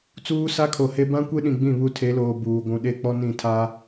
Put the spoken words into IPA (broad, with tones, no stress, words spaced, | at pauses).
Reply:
t͡suː˦sa˦kʰo˨he˦ bã˦kʷe˦ɗĩ˨ɡ͡bĩ˦˨ βu˦tʰe˨˦loː˨ buː˨ɡʷũ˨ ɗe˦k͡pɔ˦nĩ˦˨tʰa˦